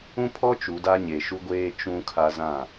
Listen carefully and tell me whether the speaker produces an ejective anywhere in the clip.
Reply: no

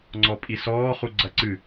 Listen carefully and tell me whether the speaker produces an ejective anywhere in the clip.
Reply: yes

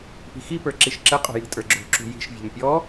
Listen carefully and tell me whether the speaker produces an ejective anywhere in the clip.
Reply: yes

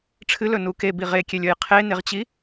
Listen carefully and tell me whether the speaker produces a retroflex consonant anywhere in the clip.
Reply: yes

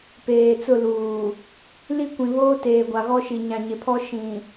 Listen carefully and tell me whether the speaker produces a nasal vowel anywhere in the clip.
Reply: yes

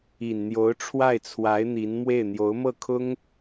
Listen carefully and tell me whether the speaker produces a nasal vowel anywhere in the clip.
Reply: no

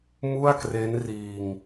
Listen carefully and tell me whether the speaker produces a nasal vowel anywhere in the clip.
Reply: no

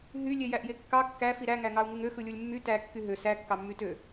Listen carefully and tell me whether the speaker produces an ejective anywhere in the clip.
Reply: no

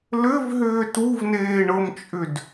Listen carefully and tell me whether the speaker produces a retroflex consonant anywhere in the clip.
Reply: yes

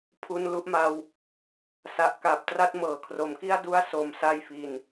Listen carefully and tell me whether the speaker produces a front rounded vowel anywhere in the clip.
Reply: no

